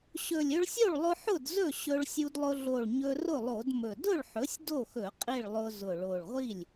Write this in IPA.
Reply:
ɕ ɵ˨˩ lʲ ɵ˧ ɭ sʲ o˥˩ ɭ lˠ ʊ˧ ħ ʊ˥˩ d z ɵ˥˩ ɕ ɵ˧ ɭ sʲ u˧ d lˠ ʊ˧ ɮ o˨˩ ɭ ɲ ɵ˧ r ʊ˥˩ lˠ o˧˩˧ d m ɵ˨˩ d ʊ˥˩ ɭ ħ ɵ˩˥ sʲ d o˥˩ x ɵ˧˩˧ qʼ i˥˩ ɭ lˠ ʊ˧ z ʊ˨˩ ɭ o˨˩ ɭ ʁʷ i˥˩ lʲ

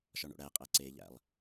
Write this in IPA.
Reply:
ʃ ɒ ɳ o̰ ɽ æ qʼ æ ǀ e ʎ æ̰ lˠ

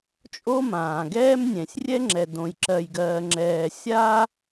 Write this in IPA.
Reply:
t͡ʃʼ o˥ m ãː˨ ɡ ɛː˥ m nʲ ɛ̃˨ sʲ rʲ ɛ˥ ŋ͡ǁ ɛ˨ d õ˨ j ǁ ɜ˨ j ɡ ɜː˨ ŋ͡ǁ ɛː˨ sʲ aː˥

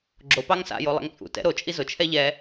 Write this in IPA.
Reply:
ɡ͡ǁ o p ɑ ŋ s a̰ j o lˠ ɛ̰ ŋ t͡sʼ ṵ t ɛ̰ ɾ o t͡ʃʼ i z ʊ t͡ʃʰ ɛ ʎ ɛ

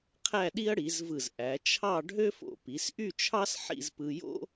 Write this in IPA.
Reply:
qʰ æ˥˧ ɗ i˥ ɐ̯ ɽ i˩˧ z v ɯ˧˩ z ʔ æ˩˧ t͡ʃʰ ɑ˥˧ ɖʱ ø˥ f o̰˧˩ p i˩˧ s ʔ y˥˧ t͡ʃʰ ɑ˥ s ħ ḭ˥˧ z p ɯ˧ j o̰˥

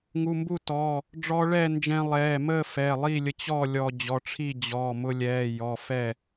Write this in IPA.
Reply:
ŋ u˩˧˩ m b u˥˨ t ɔː˩˧˩ | ɖ͡ʐ ɔː˧ ɭ ɛː˥˨ n d͡ʒ ɛ̃˧ lˠ ɛː˩˧˩ m əː˥˨ f ɛː˩˧˩ lˠ i˥˨ lʲ ə˧ t͡ɕ ɔ˥˨ lʲ ɔː˧ d͡ʑ ɔ˩˧˩ ʈ͡ʂʰ i˥˨ d͡ʑ ɔː˩˧˩ m ʊ˧ lʲ ɛː˩˧˩ j ɔ˩˧˩ f ɛ˥˨

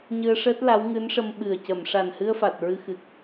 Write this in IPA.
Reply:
ɲ ɨ˧ ə̯ ʂ əː˦˥ t̚ l a˧˥ w ŋ ɨ˧˥ n ʂ ə˧ m ɓ ɨ˨˩ ə̯ c ə˨˩˨ m ʂ a˨˩ n h ɨ˧ ə̯ f a˨˩ t̚ ɹ ɨ˧ x ɨ˨˩ k̚

